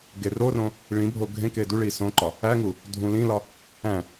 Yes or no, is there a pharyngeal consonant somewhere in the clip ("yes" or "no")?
no